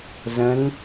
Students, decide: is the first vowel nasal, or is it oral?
nasal